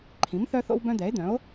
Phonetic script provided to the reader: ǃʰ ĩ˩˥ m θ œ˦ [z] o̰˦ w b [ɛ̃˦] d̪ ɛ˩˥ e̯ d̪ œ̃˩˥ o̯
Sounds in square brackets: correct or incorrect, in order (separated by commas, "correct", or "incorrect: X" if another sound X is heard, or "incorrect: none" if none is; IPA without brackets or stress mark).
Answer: incorrect: θ, incorrect: œ̃˦